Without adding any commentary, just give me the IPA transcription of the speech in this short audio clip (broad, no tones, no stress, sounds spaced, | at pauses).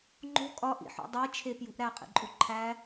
ŋ͡ǃ o̤ kʼ ɒ ʔ ḭ ħ ṵ dˤ e t͡ʃʰ e p j ṳ ʔ ɾ æ qʼ ḭ ǃʼ u ǃʰ æ